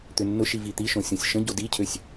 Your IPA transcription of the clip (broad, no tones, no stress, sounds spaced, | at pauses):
t̪ ʏ nː ʊ ʃ i v i t̪ i ʃ õ sʲ õ sʲ ʃ ə̃ ɟ o d i cʰ ø sʲ